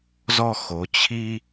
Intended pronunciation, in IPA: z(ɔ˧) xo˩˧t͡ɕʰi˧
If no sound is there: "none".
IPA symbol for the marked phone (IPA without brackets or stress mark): ɔ˧